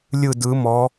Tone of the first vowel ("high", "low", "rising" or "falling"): falling